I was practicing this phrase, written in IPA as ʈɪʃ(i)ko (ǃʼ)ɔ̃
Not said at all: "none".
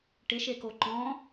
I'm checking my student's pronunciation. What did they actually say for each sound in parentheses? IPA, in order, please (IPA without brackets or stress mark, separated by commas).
e, ǃ